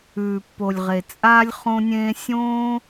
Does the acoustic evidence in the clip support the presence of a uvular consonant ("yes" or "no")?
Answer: yes